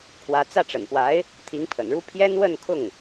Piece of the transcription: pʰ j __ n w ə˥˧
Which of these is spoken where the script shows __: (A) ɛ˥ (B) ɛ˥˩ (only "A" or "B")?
A